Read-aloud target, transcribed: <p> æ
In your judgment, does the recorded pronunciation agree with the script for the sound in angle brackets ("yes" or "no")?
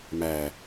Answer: no